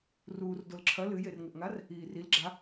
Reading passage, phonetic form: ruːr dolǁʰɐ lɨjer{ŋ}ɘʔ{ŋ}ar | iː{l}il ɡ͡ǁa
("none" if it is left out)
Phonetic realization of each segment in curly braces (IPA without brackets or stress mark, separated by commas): ŋ, ŋ, r